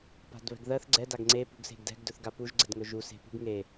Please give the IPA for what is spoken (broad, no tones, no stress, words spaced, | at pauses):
pa̤dβɛ̤ɡðɜθ ɡ͡ǀɛ daɡŋ͡ǀe pṳɡse̤ɡdɛ̤ɡ dɵθɡapuʒ ɡ͡ǀɛdŋɵʒu se̤pṳɡ ŋe